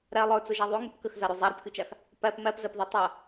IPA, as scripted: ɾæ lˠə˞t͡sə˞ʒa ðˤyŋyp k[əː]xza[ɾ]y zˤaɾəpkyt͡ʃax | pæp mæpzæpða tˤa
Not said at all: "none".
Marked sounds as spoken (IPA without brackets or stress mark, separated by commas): ə, ɾ